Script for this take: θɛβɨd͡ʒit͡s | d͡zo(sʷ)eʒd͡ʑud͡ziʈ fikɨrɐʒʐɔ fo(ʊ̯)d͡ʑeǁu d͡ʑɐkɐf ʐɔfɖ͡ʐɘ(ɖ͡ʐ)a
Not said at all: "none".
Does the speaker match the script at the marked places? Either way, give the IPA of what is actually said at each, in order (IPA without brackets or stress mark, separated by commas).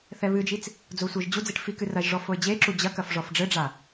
sʷ, ɪ̯, ɖ͡ʐ